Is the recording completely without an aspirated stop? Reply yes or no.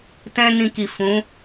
yes